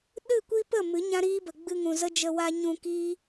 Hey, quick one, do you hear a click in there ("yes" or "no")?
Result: no